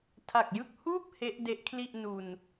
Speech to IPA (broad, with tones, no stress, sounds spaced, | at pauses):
tʰ a˨˩ k̚ j ɯ˥˩ k̚ h uː˥˩ p̚ h e˦˥ ʔ d e˦˥ ʔ kʰ l i˥˩ ʔ n u˧ n